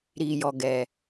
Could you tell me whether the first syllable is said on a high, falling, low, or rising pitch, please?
low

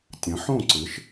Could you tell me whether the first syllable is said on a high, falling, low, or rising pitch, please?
rising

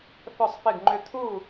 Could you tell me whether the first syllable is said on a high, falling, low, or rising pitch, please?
falling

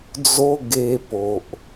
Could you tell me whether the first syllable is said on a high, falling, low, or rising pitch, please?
high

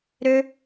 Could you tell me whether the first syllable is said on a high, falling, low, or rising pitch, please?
high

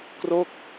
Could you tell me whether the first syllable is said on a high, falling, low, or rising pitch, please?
falling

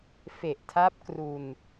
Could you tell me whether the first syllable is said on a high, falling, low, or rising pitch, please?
low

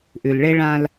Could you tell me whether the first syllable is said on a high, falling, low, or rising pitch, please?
low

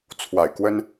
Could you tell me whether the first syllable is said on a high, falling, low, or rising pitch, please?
low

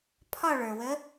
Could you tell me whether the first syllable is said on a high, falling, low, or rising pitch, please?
falling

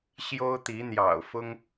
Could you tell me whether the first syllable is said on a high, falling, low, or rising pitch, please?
high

